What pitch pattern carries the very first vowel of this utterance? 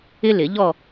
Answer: high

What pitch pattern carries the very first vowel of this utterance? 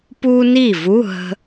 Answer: high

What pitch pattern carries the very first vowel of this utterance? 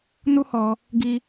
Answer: high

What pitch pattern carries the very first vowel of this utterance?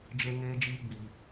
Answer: high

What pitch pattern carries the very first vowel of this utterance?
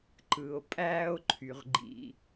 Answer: low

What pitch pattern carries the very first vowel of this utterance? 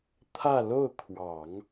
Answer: falling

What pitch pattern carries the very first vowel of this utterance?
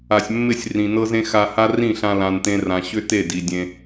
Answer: low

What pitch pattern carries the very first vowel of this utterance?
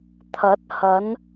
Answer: rising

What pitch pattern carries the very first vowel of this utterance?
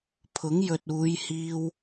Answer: rising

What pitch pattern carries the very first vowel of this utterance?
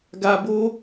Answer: low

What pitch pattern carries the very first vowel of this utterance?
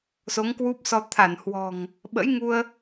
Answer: rising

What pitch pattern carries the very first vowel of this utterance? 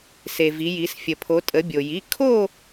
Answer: low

